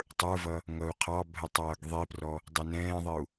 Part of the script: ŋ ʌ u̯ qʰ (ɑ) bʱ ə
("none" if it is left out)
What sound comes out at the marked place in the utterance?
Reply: ɑ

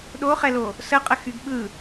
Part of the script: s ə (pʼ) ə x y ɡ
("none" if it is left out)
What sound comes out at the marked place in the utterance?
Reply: qʼ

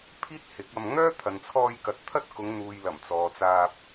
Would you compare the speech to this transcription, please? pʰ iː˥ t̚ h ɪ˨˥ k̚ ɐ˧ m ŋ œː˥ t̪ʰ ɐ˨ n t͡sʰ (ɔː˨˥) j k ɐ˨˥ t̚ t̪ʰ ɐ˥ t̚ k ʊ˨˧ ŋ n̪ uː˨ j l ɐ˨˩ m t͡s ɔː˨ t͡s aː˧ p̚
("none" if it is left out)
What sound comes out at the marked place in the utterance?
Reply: ɔː˧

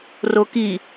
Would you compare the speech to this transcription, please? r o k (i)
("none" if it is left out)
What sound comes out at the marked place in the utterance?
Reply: i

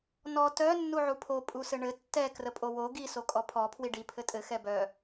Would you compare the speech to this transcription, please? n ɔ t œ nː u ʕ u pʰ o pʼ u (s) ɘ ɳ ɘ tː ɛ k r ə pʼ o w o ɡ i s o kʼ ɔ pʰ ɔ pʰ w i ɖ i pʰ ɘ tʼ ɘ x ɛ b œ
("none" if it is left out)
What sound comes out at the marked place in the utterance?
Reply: s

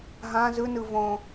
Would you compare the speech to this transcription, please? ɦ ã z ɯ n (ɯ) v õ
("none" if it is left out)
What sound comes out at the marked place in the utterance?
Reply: ɯ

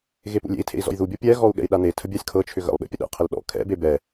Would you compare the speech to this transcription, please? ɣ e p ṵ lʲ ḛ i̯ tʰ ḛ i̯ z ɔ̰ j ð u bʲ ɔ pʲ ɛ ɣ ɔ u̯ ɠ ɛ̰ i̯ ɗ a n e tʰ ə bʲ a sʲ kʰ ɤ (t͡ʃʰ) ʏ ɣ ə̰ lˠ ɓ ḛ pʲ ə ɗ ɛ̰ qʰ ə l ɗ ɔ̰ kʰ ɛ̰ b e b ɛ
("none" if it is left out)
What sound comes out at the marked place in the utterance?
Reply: t͡ʃʰ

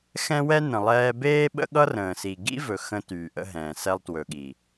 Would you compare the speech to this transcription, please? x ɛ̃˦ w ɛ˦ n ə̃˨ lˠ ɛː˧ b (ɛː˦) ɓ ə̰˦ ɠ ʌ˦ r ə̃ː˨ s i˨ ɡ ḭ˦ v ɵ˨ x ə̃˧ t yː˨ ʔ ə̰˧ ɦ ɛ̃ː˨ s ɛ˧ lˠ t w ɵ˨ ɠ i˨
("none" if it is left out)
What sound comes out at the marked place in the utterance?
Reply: eː˦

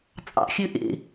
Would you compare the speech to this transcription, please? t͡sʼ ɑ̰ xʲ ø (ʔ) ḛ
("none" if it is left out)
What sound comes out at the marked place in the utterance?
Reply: ʔ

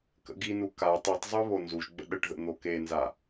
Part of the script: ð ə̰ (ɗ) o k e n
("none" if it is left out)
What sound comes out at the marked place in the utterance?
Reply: n̪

